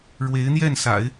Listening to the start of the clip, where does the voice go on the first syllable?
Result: rising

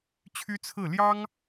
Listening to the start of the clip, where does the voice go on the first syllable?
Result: high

